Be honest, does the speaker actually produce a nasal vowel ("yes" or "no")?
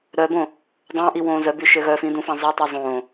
yes